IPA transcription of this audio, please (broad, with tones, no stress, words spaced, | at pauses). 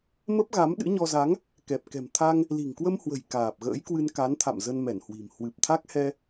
mə˦˥p̚ɣa˨˦m ɗɨ̰˧˥ɲɔ˧ za˨˦ŋ | kɛ˨˩p̚ kɛ̤˨˩mt̪ʰa˧ŋ | li̤˨˩ŋkwə˧mhwə̤˨˩j kaː˨˩p̚ɣə̰ː˧˥jkwɨ˧n ka˨˦nt̪ʰa̰˧˨m zə˧nmɛ˧˩nhwi̤˨˩m hwɨ˨˩p̚t̪ʰa˦˥k̚hɛ˧